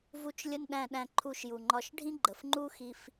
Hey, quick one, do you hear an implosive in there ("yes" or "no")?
yes